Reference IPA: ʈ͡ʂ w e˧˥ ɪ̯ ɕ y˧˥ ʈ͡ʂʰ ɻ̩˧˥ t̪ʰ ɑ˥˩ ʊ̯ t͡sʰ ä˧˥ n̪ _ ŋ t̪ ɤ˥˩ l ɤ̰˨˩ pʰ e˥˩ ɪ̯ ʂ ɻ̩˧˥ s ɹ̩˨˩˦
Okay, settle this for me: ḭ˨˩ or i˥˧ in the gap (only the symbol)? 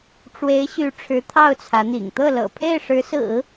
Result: ḭ˨˩